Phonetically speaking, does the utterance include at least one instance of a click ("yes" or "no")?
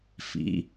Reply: no